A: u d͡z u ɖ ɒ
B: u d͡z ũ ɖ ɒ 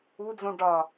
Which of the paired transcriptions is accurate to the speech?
B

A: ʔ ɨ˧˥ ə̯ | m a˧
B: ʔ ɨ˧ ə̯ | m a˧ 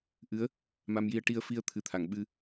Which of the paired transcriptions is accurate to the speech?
A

